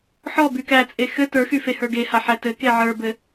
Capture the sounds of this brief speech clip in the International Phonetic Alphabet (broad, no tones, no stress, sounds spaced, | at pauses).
ħ ɔ b y k æ t͡sʼ e x ɘ t ə˞ x y f e h ə˞ ɡ e h a ħ æ t ɘ k e ʕ ə˞ b ɘ